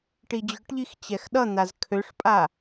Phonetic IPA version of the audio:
ʈ i d͡ʑ ʊ ʈ ʎ i x t͡ɕ ɛ x ɗ ʌ n̪ a z kʰ ø ʂ pʼ a

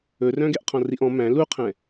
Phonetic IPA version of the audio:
ɵ r œ̃ ɡ ɛ ʔ qʰ ɔ̃ r i ʔ ɔ̃ m æ̃ l u qʰ ɛ̃

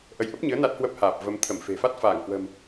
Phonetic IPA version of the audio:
ʔ ə˨˦ j ʔ ə˦˥ p̚ ɲ ɨ˨˦ ə̯ n a˦˥ t̚ h w ə˦˥ p̚ h aː˨˩ p̚ v ə˨˦ m t̪ʰ ə˧˩ m f e̤˨˩ f a˦˥ t̚ f aː˧˩ ŋ h w ə̤˨˩ m

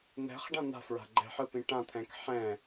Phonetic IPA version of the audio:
n̪ ɛ̤ χ ɖ ã n̪ a̤ f ɹ a̤ ɡ͡ǃ ɛ̤ ħ ɯ p ĩ ʈ ã t̪ʰ ɛ̃ k ħ ɛ̃

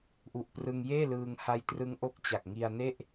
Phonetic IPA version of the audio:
ʔ u˨˩ ʔ p r ɯ˧ ŋ j eː˥˩ l ɯː˧ ŋ h a˦˥ j t r ɯ˦˥ ŋ ʔ o˦˥ k̚ t͡ɕ a˨˩ k̚ ŋ i˧ a̯ n e˥˩ ʔ

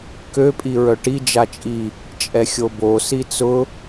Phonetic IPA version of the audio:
k ø pʼ i ɹ œ ʈ i d͡ʒ a t͡ʃʼ i | t͡ʃʼ ɛ xʲ o b o s i t͡s ʊ

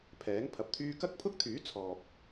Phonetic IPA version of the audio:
pʰ ɛː˨˥ ŋ pʰ ɐ˨ p̚ t̪ʰ yː˥ k ɐ˥ k̚ pʰ ʊ˥ k̚ t̪ʰ yː˨˥ t͡sʰ ɔː˨ p̚

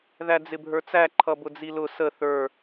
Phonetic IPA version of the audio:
ð æ d͡z ɪ bʱ ə˞ t͡s æ ǃʰ ʌ b ʊ d͡z i l ʊ s ə θ ə˞

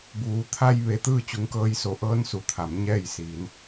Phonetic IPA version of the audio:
b uː˩˧ t̪ʰ a˧ j ʋ e˧˥ t̪ ɯː˥˨ t͡ɕ u˧˥ ŋ k ɤː˧˥ j s o˩˧ ʔ ɤː˧˥ n s u˩ t̪ʰ a˩˧ m ɲ ɛː˥˨ j s iː˩˧ n

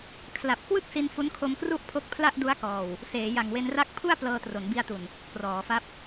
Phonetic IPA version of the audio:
kʰ l a˨˩ p̚ k w ɯ˥˩ k̚ s i˧ n f u˦˥ n kʰ o˧ m k r u˥˩ ʔ pʰ o˦˥ k̚ pʰ l a˥˩ ʔ d u˦˥ a̯ k ɔː˨˩ w | s eː˩˦ j a˨˩ ŋ w e˧ n r a˥˩ k̚ pʰ u˥˩ a̯ p l ɤː˧ t r o˩˦ n b i˧ a̯ t u˨˩ n | k r ɔː˩˦ f a˦˥ p̚

